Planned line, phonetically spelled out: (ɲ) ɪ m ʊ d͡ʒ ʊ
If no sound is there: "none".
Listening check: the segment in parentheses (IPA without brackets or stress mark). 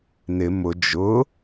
n